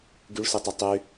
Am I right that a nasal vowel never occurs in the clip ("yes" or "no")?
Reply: yes